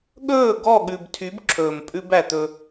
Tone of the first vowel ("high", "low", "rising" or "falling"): falling